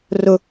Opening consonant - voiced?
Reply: yes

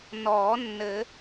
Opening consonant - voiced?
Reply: yes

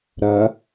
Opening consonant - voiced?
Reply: yes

